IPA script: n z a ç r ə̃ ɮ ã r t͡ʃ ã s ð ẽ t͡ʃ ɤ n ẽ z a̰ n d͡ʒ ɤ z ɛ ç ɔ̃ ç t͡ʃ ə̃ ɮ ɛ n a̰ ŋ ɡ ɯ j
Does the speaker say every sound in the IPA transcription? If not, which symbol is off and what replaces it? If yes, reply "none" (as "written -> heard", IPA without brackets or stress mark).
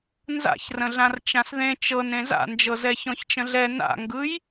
a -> a̰